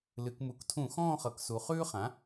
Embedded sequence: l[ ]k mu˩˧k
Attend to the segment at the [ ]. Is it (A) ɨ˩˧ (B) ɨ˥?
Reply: A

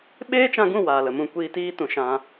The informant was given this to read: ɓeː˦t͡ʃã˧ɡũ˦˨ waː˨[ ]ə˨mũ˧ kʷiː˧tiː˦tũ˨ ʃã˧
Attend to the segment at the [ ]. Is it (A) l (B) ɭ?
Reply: A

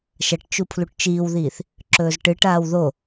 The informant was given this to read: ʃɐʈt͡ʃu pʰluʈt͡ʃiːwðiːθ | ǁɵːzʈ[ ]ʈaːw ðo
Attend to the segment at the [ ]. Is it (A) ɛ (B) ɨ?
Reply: B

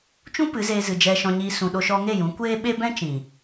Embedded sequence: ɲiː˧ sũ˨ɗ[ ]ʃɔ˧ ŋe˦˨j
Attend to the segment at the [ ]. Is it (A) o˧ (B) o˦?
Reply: A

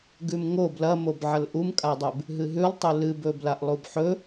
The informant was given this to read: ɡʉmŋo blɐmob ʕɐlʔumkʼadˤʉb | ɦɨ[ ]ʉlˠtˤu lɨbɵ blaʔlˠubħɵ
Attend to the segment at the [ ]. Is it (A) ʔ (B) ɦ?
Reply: B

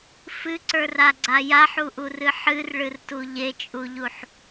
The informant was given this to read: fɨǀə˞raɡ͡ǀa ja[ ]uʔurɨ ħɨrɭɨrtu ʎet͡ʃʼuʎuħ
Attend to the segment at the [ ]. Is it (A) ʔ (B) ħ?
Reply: B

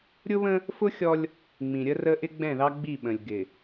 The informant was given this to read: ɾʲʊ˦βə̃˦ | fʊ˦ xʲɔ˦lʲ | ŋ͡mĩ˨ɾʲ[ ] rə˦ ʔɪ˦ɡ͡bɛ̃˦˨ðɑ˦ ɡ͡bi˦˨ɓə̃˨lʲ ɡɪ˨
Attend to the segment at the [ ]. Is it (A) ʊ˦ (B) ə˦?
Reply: B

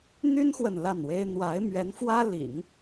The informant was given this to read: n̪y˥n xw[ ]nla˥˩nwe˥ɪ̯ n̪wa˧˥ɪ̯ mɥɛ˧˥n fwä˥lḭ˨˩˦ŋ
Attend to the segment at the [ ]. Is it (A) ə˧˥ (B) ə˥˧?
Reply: B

